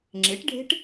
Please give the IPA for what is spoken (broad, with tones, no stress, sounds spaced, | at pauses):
ŋ͡ǁ e˩˥ ʈ ɖʱ e̤˦˥ ʈ